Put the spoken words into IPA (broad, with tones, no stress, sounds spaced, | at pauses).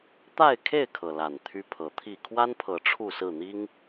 t̪ a˥˨ ɪ̯ kʰ e˥˨ ɪ̯ kʰ ɤ˩ l a˨˩ n t̪ʰ y˦ pʰ ɤ˨˦ t̪ʰ i˥˨ kʰ w a˦ n pʰ ɤ˨˦ ʈ͡ʂʰ u˥˨ s ɹ̩˥˨ n̪ i˦ ŋ